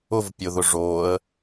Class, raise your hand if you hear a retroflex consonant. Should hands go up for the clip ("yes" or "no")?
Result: yes